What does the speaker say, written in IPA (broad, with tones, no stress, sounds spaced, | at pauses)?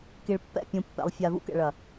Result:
k i˨ ɭ pː ɛ̰˦˨ pʲ ũ˨ pː ɛ̰˨ lˠ fʲ a˨ v ṵ˦ k ɛ̰˨ ɭ ɐ˨